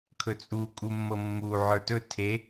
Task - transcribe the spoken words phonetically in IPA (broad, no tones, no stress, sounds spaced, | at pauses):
kʰ ɵ t͡sʼ u kʼ u mː ɤ mː u ʕ ə˞ t ɵ tʰ e